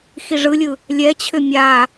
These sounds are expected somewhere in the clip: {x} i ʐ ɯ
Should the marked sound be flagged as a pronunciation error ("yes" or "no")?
no